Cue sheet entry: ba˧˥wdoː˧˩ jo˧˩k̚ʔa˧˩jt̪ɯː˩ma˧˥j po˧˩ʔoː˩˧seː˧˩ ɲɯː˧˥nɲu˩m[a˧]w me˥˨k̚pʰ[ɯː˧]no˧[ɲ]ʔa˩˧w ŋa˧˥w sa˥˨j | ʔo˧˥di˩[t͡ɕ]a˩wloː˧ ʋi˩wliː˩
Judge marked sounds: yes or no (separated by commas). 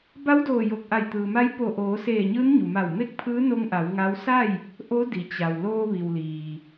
no, no, no, yes